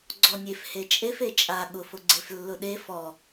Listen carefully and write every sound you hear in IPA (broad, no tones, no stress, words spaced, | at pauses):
ɡ͡ǀɔnʲef het͡ʃʼef et͡ʃʼa ɠʊf ʊɡ͡ǀeflːʊɗe fɔ